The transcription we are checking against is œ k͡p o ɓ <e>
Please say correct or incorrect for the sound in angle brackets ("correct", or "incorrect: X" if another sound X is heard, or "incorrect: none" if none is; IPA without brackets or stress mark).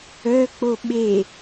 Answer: correct